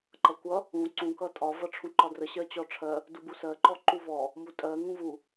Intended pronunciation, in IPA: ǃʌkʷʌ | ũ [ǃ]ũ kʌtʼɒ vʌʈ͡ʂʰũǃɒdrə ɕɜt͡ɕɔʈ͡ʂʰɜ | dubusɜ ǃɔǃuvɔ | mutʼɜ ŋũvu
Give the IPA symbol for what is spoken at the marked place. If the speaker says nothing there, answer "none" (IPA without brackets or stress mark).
ǀ